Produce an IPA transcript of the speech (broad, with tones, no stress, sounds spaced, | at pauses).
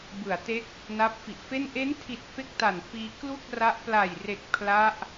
b ɯ˩˦ a̯ t e˦˥ k̚ | n aː˦˥ p̚ f i˨˩ ʔ f e˥˩ n ʔ e˦˥ n tʰ i˨˩ t̚ f e˥˩ k̚ t a˨˩ n f iː˧ k l u˥˩ k̚ r a˦˥ ʔ p l a˨˩ j r e˨˩ k̚ pʰ l a˦˥ ʔ